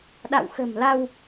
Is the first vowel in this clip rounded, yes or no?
no